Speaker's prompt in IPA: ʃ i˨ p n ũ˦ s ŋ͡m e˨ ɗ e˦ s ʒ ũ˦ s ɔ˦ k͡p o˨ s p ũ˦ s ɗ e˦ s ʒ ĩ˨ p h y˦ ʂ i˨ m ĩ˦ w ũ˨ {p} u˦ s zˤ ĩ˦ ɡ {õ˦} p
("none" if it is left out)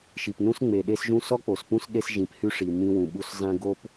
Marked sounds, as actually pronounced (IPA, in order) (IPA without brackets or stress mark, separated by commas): ɓ, o˦